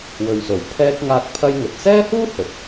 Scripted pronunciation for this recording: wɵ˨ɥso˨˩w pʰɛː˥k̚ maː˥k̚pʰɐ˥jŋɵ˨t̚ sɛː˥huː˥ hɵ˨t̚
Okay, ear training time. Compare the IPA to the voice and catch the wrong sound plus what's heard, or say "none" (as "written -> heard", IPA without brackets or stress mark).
m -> ŋ